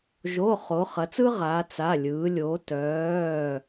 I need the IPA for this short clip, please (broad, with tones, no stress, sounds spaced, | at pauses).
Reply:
ʒ o˩˧˩ χ o˩˧ χ ɐ˩˧ t͡s ɯ˥ ʁ aː˩˧ t͡s a˩˧˩ lʲ ɯː˩˧ lʲ o˩˧ t œː˩˧˩